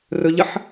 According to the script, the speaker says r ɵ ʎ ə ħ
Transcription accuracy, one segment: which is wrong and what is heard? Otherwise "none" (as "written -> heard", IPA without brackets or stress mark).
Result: none